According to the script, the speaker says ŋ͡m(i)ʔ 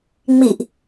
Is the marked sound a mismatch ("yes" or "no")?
no